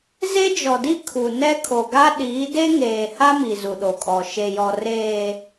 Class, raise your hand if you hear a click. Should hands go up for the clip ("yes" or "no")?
no